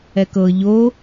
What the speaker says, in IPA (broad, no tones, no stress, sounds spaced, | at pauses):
ɛ k ɤ ʎ o